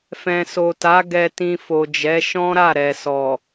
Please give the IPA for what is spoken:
f ɛ̃˨ s o˨ t a˨˦ ɡ ɛ˧ t ĩ˧ f o˨ d͡ʒ ɛ˨˦ ʃ ɔ̃˦ ɾ a˦˨ ɾ ɛ˨ s ɔ˨

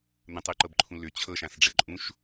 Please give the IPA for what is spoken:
n̪ ə̃ tˤ ʉ ǃ ɤ b ǃʰ ũ l ʏ t͡ɕʰ ɤ ʃ ã s ɖ͡ʐ ɘ ǃʼ ũ ʃ

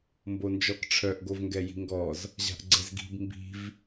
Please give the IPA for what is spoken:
m b o n d͡ʒ ɔ k ʈ͡ʂʰ œ ʔ ɡ o v ŋ ɡ ɛ j i̤ ŋ ɡ ɔ z | ʑ a̤ ʔ ɡ͡ǀ ɛ z ɡ i̤ b m b i̤ v

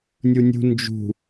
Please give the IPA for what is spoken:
nʲ u nʲ ṳ n d͡ʒ ṳ

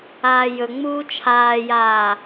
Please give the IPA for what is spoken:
aː j ɵ ŋ͡m uː t͡ʃʰ aː j aː

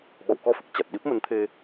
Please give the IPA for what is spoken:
ɓ ɔ̰˧˨ w k ɔ˧ f ɨ˨˩ k̚ t͡ɕ a˨˩ t̚ ɗ i˦˥ p̚ m ə˨˦ n t̪ʰ e˧

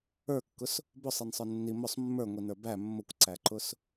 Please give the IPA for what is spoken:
ə˞ kː ʊ s | b ʊ sˤ i n sˤ ə˞ nː i m ʊ sˤ mː ə˞ ŋʷ i n ə˞ b æ mː ʊ kʷ ǀ æ ǃ ʊ s

